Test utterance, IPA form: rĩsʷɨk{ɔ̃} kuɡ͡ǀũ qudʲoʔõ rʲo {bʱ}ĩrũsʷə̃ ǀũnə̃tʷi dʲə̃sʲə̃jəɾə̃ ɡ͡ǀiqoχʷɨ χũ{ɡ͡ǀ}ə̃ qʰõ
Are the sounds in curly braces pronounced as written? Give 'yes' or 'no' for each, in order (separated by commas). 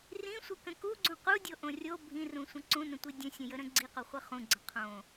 no, yes, yes